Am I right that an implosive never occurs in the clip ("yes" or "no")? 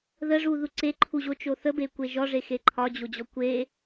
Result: yes